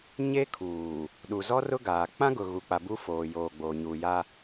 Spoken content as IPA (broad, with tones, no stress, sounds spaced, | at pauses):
ɲ e˦ kʰ uː˨ | ɗ u˨ z ɔ˦ r ʊ˦ ɡ aː˨ k͡p ã˦ ɡ ʊ˨ ɣ u˨ k͡p a˨ b u˦ f oː˨ j oː˨ ɡ͡b oː˨ ɲ uː˨ j a˦